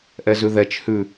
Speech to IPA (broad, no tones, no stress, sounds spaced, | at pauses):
ʔ ɛ z ʉ ð ɛ t͡ʃ h ʉ